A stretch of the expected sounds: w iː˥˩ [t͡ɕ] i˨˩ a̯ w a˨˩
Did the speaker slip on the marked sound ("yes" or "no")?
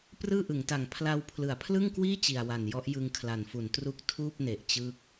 no